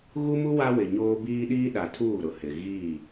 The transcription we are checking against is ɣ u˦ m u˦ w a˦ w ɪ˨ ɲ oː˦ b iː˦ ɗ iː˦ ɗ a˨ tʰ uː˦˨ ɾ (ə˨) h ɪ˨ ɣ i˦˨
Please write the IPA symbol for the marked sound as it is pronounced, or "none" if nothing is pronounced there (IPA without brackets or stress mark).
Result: ʊ˨